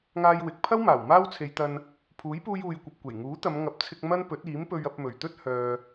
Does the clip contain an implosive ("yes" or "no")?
no